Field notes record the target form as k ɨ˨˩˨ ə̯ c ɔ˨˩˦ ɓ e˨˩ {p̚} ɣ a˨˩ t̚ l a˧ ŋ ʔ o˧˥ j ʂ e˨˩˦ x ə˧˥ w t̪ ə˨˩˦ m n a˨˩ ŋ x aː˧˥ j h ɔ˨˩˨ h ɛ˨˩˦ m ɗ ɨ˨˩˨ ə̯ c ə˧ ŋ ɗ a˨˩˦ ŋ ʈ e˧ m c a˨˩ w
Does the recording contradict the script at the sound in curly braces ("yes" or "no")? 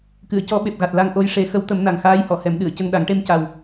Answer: no